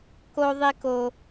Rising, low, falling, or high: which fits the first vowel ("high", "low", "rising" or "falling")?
high